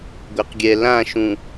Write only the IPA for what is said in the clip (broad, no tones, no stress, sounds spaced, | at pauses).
ɡʷ e q ɡʲ ɛ l ã ʃ ũ